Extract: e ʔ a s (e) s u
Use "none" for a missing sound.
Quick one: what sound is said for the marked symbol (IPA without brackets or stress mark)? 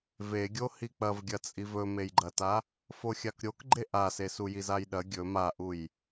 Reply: e